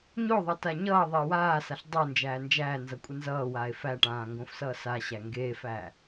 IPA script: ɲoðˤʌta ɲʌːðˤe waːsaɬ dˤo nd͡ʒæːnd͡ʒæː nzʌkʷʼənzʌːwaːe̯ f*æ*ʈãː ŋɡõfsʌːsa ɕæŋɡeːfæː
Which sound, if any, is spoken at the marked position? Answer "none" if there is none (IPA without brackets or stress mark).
æ